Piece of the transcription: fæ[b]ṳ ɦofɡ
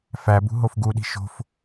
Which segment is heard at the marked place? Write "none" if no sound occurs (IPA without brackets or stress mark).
b